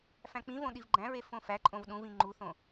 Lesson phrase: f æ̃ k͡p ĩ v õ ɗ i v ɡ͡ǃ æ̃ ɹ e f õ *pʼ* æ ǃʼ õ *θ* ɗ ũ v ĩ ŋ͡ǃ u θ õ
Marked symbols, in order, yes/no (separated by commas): no, no